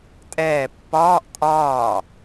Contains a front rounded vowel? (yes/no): no